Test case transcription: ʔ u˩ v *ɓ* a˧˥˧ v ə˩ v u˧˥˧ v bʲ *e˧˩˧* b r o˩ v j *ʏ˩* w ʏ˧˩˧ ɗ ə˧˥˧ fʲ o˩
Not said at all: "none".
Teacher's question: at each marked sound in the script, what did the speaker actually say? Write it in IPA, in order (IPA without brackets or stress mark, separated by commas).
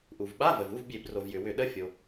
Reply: ɓ, e˧˩˧, ʏ˩